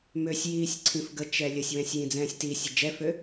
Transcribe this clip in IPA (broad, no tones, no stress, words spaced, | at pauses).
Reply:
møsʲjiːsʲ ǀʰĩfɡət͡ʃɛ lʲəsʲwɛ̃sʲ jĩd͡zɛ̃ːsʲtisʲə d͡ʒɛfø